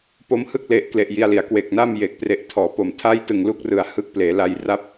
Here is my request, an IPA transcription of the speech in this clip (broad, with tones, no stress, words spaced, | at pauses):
po˦˥mhɯ˥˩k̚le˨˩ʔkle˨˩ʔ ji˧a̯li˩˦a̯ kwe˨˩k̚na˥˩m jeː˨˩k̚pre˨˩ʔtʰɔː˩˦po˨˩m tʰa˥˩jtɯ˨˩ŋlu˥˩k̚rɯ˨˩a̯ hɯ˦˥k̚pleː˩˦ la˧jra˥˩p̚